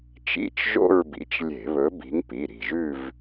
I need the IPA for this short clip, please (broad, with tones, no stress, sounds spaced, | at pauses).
t͡ʃ ḭ˧˥˧ t͡ʃ ʒ o̰˥˧ ɹ b ḭ˨˦ t͡ʃ lʲ e̤˧˩˧ β ɵ˨˦ b i̤˨˦ ŋ p i˩˧˩ ɾ i̤˧˩ ʒ ʉ˥˧ v